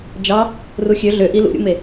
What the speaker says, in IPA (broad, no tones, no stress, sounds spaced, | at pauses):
d͡ʒ ɑ | r u xʲ ø ɮ ø ʔ i l ṵ ɾʲ ṵ m e